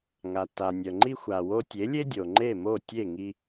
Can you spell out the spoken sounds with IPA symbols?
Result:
ŋ a˩ tː a˩ nʲ œ˩ ŋ͡ǃ i˧ xʷ a˩ w o˧ tʲ e˩˥ lʲ e˥ dʲ o˩ ŋ͡ǃ e˥˩ m o˥˩ tʲ e˥˩ ŋ i˧

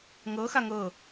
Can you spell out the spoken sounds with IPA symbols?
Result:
ŋ ɤ x a ŋ ɤ

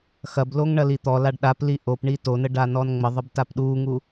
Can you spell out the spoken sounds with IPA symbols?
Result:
x ɐ b l o ŋ ɳ ɐ l i t̪ ɔ l a ɖ ɗ a p l i ʔ o p ɳ i t o n ə ɖ a n ɔ n ŋ͡m ə ðˤ ə b t a p ɗ u ŋ u

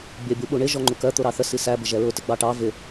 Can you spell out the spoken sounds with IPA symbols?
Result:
bʲ ɜ bʲ u ɓ u ɳ ɪ ʒ ɔ ŋ͡ǃ u k ɜ t̪ ʊ ɾ ɑ θ ə s i s æ b ɪ ʒ ɛ ɹ ʊ t ɪ ɡ͡b ɑ ʈ ɑ v ɪ

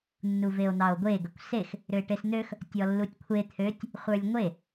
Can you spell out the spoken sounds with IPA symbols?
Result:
nː u v e o̯ n̪ ɑ o̯ ɡʷ e ɡ ə kʷ s e x | ɾ ʏ e̯ ʈ e s n̪ ø x | tʲ ɔ lː u tʲ kʷʰ e t̪ʰ ø tʲ | χʷ ə˞ lʲ ŋʷ e

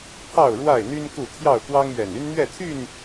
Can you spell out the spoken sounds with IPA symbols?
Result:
pʰ ɑ˥˨ ʊ̯ ɻ w a˥˨ ɪ̯ n̪ y˦ n k u˥˨ t̪ʰ j ɑ˥˨ ʊ̯ k w ɑ˦ ŋ ɥ ɛ˨˩ n y˦ n n̪ ɥ ɛ˥˨ t̪ʰ y˥˨ n

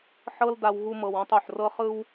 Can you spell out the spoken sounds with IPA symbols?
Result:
ħ ɤ˦ l d a˧ w ɣ u˧ m ɤ˨ w ɔ̃˧ tˤ o˨ ħ r ɤ˦ χ ɯ˦ w

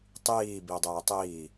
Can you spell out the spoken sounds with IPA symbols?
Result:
tˤ iː b i dˤ eː tˤ iː

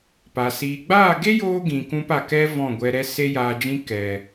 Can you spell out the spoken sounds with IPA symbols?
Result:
p a˨ s iː˨ ɡ͡b aː˦˨ ɡ e˦ j oː˦ ɡ ĩ˨ k ũ˧ p a˨ k ɛ˧ v ɔ̃˦˨ ɡʷ ɛ˧ ɾ ɛ˦ s e˦ j aː˧ d͡ʒ ĩ˦ k ɛ˨

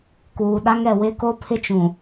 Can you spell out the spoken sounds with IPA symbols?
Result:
k uː˨ ɗ a˦ ŋ ɛ˨ w ɪ˦ k o˦ pʰ ɪ˦ t͡ʃ ũ˨

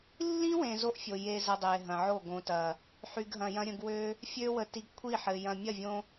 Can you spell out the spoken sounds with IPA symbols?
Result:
lː ĩ˦ w ẽ˨ z o˦ ʔ fʲ o˨ j e˦ z ə˧ dˤ e˨ ɦ ɐ̃˨ ʕ o˦˨ ɡ õ˨ t ɐ˨ | ħ y˧ ɡ ɦ ɐ̃˧ j ɐ̃˦ ɾʲ ə̃˧ ɡ w ø˦ | fʲ ø˦ w ə˧ t i˨ ɡ kʷʰ i˦˨ ħ ɘ˨ j ɐ̃˨ mʲ ɐ˦˨ vʲ õ˧

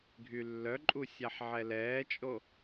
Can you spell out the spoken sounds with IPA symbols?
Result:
ɡʱ y lː œ ǃʼ u sʲ a ħ ʕ ɛ l ɛː t͡ʃʼ o

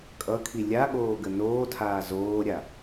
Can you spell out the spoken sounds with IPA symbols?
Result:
kʼ ʌ kʰ i lʲ a ɠ oː ɡ ə n oː tʰ aː z oː ɾʲ a

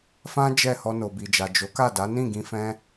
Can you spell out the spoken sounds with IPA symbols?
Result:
f ã˦ d͡ʒ ɛ˦˨ h ɔ˧ n o˨ b i˨ d͡ʒ a˨ d͡ʒ o˨˦ k a˦˨ d a˨˦ n ĩ˦˨ ɡ ĩ˧ f ɛ̃˦

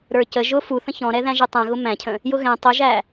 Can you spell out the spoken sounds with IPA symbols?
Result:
ɾ ə˞ c ə ʒ ʊ f u θ ə̃ ç ɔ̃ ɾ ɛ ð æ̃ ʒ i tˤ æ̃ ɣ ʊ m æ̃ cʰ ə̃ | j ʊ ɣ ɛ̃ tˤ ʊ ʒ æ

